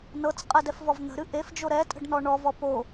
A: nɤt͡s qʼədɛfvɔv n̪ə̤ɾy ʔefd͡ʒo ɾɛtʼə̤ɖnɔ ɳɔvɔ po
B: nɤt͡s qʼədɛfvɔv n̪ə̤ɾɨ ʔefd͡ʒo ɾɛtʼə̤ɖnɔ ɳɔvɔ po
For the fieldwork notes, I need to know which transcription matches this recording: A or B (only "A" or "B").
B